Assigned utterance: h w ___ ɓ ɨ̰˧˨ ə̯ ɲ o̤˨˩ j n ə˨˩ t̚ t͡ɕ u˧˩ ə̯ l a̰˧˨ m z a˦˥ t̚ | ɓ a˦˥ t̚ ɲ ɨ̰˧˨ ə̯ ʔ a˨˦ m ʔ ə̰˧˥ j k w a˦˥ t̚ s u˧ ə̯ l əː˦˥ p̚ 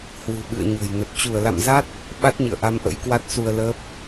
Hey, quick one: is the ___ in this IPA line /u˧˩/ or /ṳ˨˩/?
ṳ˨˩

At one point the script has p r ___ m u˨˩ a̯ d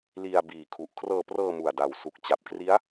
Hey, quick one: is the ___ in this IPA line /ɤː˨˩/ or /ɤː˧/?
ɤː˧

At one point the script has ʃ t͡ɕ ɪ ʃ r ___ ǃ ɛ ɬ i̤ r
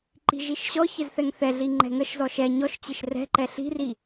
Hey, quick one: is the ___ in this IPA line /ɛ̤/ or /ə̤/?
ɛ̤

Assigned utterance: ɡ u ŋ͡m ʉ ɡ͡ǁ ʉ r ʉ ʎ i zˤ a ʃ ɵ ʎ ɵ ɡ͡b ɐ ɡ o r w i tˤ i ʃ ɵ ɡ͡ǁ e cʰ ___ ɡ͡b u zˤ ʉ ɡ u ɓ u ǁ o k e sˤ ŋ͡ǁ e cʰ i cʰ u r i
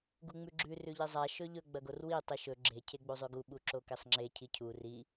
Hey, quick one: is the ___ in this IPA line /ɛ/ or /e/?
e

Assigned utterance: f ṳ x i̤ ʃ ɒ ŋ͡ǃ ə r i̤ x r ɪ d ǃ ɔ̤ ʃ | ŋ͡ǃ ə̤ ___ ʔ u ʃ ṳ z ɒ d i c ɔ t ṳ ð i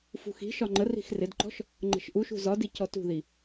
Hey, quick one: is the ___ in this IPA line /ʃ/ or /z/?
ʃ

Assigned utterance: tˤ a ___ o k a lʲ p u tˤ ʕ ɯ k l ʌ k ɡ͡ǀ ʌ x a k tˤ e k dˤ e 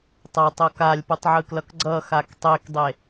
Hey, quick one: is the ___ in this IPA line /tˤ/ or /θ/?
tˤ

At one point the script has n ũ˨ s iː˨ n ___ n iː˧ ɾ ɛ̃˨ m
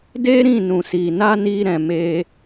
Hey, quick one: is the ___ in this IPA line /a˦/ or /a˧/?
a˦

